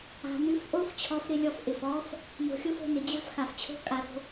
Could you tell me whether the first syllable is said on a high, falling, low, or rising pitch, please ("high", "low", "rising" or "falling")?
low